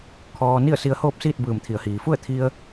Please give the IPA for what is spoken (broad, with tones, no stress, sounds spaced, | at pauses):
kʰ ɔː˧ n i˥˨ ə̯ s i˧ ə̯ h oː˥˨ p̚ s iː˥˨ t̚ b ɯː˧˩ m t̪ʰ i˩ ə̯ h iː˩ f u˥˨ ə̯ t̪ʰ i˧ ə̯